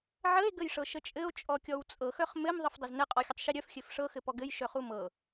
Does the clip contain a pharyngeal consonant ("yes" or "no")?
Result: yes